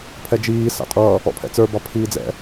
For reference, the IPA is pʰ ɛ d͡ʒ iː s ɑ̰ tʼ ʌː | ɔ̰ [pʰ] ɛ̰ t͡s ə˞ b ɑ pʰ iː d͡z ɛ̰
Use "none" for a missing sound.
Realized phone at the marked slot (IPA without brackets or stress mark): pʰ